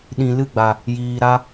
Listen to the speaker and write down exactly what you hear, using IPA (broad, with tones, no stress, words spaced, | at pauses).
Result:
ɗĩ˨lɨ˦˨ɡ͡ba˨ | jiː˨ɾa˧